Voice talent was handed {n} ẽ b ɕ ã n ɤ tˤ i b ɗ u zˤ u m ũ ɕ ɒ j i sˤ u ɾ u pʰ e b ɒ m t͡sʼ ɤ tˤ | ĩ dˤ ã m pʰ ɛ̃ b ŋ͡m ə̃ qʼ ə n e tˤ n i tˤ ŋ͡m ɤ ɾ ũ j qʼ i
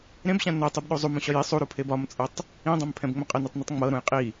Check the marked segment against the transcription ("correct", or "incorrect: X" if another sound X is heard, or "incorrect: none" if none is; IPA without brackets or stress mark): incorrect: ɾ